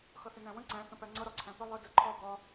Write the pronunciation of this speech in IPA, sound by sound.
xʌθɪnæ̃wə̃ ǀæ̃ θə̃pæŋ͡ǀʌ ɾɒǀʰæ̃pɪ lˠə də ǃʰɒ bɒ

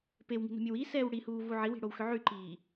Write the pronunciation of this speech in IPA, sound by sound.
pewŋi̤no̤mʲɘw isɛːw ɽihuːvu ʕiwi̤ɽowxʏ ʕyǃiː

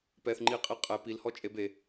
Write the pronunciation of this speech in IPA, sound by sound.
pɛθŋ͡ǃiqʼi qʼɛ pilhɔt͡ʃʼeb e

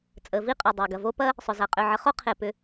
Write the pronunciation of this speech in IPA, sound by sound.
t͡sʼə˩vi˦ qʼʏ˩dˤø˩ɡɐ˩vo˦ pɐ˦ | sˤʏ˩za˩ qʼø˨ʕə˨χo˥ qʰe˨pʏ˨

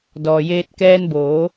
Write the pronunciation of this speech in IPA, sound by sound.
dɔː˩ jeː˧t̚kɛː˧nboː˩˧

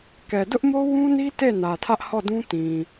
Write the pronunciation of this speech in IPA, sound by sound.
kɛ˨dʊ˦ʔmo˦ wũ˦ni˦ te˦˨ nä˨tʰä˦ʔ hɔ˦˨dũ˦ tĩ˨

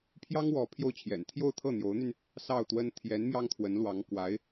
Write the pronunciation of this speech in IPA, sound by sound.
pʰjɑ˥ŋwɔ˧˥ pʰjo˥˩ʊ̯t͡ɕʰjɛ̰˨˩n t̪ʰjo˥˧ʊ̯t̪ʰɤ˥˩n̪jo˧˥ʊ̯n̪y˧n | sɑ˥˩ʊ̯t̪wə˥n t̪ʰjɛ˧˥n mjɑ˥ŋt̪ʰwə˧˥nlwɑ˧˥ŋ kwa˧˥ɪ̯

